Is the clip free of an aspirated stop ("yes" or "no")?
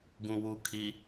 no